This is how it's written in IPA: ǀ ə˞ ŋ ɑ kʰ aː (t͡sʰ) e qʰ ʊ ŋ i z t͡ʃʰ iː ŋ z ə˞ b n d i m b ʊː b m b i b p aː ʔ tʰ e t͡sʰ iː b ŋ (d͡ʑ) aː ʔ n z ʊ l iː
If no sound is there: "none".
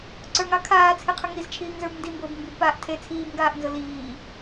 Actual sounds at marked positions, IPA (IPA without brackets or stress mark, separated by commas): t͡sʰ, ɡ